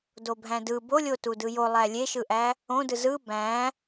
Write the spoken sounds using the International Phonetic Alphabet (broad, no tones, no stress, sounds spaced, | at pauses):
d o bʱ æ̃ d ɯ b o lʲ o t u d ɯ j o lˠ æ lʲ e ʃ ɯ ʔ æ | õ d ɯ z ɯ b æ̃